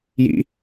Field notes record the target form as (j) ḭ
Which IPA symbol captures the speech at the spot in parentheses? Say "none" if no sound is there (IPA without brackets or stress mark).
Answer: j